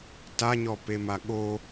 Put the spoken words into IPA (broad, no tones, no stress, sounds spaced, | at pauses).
t a ɲ ɔ p e m a ɠ o